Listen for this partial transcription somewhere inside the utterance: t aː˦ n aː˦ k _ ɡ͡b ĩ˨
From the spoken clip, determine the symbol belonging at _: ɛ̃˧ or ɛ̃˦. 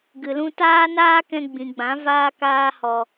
ɛ̃˧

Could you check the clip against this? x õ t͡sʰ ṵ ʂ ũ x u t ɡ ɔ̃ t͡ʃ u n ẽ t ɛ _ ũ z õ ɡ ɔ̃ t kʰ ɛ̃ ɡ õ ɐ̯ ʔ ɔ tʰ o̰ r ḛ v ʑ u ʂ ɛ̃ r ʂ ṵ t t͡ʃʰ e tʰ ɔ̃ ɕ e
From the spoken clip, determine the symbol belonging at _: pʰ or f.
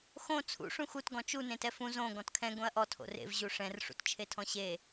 f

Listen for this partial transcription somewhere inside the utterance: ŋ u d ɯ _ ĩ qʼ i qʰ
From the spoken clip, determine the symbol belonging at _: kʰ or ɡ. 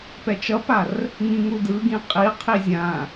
ɡ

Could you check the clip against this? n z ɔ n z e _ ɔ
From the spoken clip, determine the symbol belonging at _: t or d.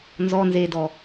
d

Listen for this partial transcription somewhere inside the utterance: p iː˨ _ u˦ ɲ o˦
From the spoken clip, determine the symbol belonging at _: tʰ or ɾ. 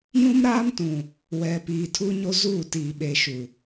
tʰ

